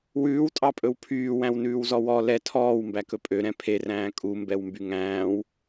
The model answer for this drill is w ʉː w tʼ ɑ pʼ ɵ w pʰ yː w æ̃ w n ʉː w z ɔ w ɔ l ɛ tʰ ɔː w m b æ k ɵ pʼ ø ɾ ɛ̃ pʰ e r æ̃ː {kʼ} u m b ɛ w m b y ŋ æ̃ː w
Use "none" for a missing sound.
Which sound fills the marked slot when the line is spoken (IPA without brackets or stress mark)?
kʼ